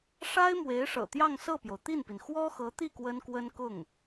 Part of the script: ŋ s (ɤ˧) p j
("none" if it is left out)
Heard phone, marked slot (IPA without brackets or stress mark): ɤ˥˩